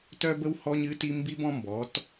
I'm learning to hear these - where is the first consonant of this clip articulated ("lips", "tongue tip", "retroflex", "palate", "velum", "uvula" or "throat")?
tongue tip